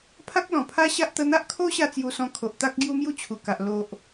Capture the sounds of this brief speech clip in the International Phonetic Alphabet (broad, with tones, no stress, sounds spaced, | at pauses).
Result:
pʰ a˦ k̚ l ɔ̃˨˩ pʰ a˦ ɕ a˦ ʔ t̪ ə˧ n̪ a˦ ʔ kʰ o˦ ɕ a˧ t͡s j u˧ s ɔ̃˧ kʰ o˨ ʔ t̪ a˦ k̚ ɡ j u˦ m j u˥˧ t͡ɕʰ u˨˩ k a˨ ʔ l o˨ ʔ